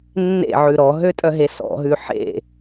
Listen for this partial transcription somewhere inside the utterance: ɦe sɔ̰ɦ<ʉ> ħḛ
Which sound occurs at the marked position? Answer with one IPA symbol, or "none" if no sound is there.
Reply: ʉ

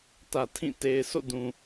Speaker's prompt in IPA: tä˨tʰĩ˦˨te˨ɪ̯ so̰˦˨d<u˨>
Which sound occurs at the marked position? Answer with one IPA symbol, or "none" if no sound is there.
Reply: ũ˨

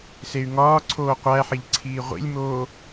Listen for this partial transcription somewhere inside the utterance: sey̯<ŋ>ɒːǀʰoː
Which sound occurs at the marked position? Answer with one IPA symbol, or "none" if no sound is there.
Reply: ŋ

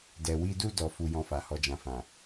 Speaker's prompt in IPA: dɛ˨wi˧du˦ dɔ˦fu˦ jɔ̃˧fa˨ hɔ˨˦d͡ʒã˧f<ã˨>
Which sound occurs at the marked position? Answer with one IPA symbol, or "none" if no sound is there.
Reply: ã˨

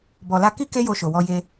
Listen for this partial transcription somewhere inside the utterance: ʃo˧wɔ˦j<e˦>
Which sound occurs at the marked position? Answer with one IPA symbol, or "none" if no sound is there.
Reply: e˦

